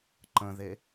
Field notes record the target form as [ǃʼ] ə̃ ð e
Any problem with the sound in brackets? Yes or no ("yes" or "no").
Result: yes